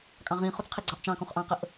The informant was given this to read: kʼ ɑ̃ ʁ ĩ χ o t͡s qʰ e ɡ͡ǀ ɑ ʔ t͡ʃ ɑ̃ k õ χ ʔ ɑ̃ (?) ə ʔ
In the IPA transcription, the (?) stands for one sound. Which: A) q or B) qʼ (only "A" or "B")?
A